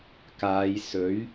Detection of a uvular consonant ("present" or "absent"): absent